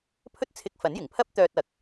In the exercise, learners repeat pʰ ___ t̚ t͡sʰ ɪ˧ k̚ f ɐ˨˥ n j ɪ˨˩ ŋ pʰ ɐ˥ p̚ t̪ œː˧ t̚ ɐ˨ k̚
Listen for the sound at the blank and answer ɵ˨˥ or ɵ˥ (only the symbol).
ɵ˥